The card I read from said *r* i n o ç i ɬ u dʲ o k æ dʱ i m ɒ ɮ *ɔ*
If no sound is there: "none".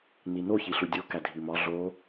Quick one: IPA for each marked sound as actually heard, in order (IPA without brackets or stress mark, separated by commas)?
n, o